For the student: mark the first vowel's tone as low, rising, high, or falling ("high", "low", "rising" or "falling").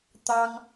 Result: high